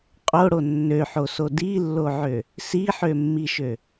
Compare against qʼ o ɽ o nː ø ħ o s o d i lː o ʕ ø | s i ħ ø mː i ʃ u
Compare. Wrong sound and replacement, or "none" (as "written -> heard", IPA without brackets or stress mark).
u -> ø